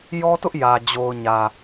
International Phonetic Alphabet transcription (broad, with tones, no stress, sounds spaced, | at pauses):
j ɔ˦ t ʊ˦ ʔ j ä˨ d͡ʑ o˨ ʊ̯ ɲ ä˨